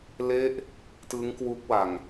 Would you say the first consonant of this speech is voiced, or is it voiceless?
voiced